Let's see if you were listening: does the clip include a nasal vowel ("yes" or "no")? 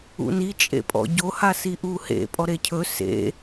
no